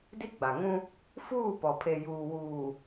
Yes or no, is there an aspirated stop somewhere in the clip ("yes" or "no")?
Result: yes